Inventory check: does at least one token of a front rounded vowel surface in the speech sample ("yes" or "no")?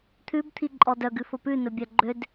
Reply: yes